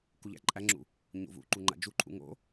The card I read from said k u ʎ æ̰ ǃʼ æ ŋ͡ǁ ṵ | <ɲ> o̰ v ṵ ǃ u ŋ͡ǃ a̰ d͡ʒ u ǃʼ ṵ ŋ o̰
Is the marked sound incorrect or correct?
correct